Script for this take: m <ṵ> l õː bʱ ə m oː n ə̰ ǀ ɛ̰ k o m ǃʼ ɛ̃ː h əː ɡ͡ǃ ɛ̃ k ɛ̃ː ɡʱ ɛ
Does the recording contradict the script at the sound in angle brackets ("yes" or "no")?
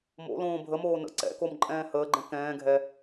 yes